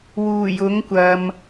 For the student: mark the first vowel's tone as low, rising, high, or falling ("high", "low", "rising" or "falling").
low